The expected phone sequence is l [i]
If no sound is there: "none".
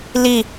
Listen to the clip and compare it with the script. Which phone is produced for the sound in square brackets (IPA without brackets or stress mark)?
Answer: i